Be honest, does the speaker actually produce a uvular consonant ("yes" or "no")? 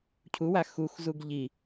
no